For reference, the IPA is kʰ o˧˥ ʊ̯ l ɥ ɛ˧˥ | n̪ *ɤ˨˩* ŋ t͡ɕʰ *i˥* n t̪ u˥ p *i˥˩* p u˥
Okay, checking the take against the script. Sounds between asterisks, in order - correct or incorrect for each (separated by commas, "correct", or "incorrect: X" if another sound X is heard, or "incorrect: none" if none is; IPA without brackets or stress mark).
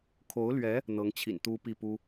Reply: incorrect: ɤ˧˥, incorrect: ḭ˨˩, correct